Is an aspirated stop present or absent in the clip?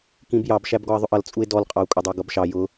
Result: absent